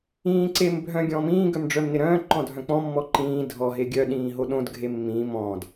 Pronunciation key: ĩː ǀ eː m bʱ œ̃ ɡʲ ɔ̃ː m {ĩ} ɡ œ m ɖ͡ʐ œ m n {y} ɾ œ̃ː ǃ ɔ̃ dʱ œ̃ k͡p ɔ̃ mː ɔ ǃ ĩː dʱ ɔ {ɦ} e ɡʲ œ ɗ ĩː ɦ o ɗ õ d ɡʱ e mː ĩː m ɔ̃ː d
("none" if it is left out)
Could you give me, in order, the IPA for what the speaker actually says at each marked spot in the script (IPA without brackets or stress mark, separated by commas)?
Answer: ĩː, ɪ, ɦ